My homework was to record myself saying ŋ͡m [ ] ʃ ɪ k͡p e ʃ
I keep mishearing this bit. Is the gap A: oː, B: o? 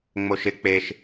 B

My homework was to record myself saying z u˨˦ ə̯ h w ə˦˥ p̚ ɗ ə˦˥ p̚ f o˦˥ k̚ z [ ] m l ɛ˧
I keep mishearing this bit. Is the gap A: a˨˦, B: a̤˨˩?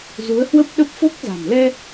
B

